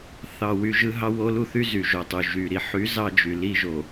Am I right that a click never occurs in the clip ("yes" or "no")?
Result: yes